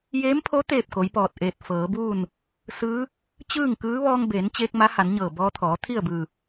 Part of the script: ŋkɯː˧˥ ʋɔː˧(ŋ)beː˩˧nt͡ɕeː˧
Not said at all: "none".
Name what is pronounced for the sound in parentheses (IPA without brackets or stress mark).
ŋ